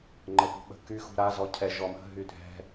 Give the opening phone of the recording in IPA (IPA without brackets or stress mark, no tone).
ŋ͡ǃ